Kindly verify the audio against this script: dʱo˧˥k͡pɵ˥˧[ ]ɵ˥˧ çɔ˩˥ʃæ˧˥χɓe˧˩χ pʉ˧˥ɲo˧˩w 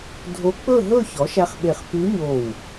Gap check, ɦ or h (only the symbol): ɦ